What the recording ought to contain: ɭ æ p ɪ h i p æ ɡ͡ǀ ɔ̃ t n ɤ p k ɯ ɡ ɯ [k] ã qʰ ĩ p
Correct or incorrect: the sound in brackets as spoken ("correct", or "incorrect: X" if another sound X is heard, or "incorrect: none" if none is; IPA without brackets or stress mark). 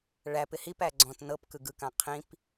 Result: correct